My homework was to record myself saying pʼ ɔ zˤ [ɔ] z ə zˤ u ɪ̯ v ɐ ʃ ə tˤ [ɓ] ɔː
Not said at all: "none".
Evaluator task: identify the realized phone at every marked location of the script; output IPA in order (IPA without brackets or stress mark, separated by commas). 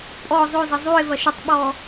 o, ɓ